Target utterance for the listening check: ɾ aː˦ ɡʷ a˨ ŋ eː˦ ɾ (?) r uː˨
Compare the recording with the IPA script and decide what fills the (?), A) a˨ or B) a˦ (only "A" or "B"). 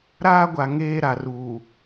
A